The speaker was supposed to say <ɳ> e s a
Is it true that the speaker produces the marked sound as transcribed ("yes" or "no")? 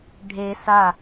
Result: no